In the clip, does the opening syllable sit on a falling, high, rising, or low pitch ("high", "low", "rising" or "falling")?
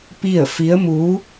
falling